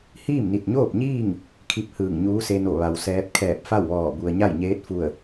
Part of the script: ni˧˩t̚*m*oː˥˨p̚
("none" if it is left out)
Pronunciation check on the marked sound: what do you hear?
ɲ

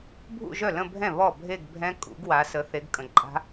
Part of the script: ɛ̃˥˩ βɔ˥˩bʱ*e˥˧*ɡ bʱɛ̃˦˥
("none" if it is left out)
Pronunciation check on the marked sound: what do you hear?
e˥˧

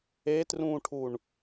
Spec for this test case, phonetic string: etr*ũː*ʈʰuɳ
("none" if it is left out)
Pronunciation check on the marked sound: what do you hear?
ũː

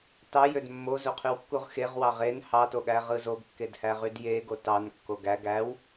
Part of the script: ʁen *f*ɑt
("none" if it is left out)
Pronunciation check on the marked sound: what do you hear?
h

